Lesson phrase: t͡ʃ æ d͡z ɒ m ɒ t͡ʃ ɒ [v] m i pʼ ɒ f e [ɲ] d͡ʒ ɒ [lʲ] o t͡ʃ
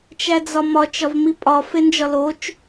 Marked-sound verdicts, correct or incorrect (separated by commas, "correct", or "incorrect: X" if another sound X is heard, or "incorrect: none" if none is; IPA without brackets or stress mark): correct, incorrect: n, incorrect: l